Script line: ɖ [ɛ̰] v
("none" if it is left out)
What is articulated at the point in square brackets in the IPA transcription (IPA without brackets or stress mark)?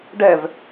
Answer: ɛ